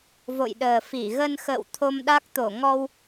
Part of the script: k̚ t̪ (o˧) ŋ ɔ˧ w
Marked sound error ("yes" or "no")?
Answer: yes